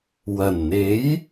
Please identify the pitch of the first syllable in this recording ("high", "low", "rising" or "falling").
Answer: low